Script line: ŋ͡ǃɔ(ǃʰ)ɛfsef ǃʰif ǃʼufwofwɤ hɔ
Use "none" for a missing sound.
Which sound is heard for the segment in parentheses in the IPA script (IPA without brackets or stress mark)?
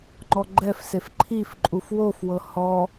ɡ͡ǃ